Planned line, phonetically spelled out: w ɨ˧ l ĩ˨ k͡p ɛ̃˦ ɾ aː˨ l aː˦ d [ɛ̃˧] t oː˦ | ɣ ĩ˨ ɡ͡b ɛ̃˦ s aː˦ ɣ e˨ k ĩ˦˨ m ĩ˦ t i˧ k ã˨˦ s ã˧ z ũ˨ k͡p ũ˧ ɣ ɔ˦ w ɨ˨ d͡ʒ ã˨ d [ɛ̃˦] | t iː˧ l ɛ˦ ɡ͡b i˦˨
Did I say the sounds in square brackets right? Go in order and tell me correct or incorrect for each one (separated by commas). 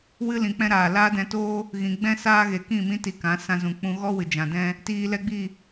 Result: correct, correct